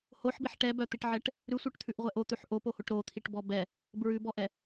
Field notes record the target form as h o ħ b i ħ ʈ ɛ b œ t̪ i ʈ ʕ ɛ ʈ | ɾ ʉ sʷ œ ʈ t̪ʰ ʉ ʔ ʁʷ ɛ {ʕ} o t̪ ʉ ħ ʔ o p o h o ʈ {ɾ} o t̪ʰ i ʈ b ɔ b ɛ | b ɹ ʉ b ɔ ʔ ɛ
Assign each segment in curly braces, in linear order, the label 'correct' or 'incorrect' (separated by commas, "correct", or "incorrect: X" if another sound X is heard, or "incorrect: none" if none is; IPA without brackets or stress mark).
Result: incorrect: ʔ, correct